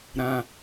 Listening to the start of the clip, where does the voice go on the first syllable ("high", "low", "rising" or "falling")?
low